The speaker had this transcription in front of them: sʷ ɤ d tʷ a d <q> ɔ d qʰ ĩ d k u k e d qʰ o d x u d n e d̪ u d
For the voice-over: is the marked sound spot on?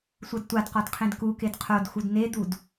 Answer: yes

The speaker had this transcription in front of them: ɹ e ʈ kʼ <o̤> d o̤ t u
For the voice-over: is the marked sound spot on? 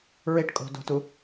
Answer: yes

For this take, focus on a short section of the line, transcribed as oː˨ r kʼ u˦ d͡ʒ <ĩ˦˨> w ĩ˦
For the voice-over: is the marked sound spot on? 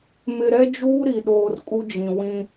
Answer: no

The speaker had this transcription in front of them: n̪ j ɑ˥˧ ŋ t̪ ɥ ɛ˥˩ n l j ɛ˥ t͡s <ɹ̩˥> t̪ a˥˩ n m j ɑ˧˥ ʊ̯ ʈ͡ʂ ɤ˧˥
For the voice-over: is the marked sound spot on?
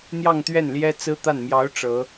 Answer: yes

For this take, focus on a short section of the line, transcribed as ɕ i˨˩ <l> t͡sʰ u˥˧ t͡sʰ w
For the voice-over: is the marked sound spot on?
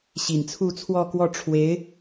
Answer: no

